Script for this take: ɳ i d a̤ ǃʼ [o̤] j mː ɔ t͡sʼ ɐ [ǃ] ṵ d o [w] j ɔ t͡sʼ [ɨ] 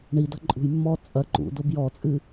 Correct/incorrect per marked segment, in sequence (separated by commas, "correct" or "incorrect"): incorrect, correct, incorrect, correct